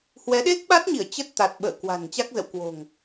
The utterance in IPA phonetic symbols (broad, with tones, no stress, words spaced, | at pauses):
hwɛ˨˦ɗe˦˥k̚ɓa˦˥t̚ɲi˧˩ə̯ t͡ɕə˦˥t̚t̪a˨˩t̚ɓə̰ː˧˨ kwa̤˨˩nt͡ɕa˦˥k̚zə̰˧˨wkwo̤˨˩ŋ